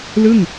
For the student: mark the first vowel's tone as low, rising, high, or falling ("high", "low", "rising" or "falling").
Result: falling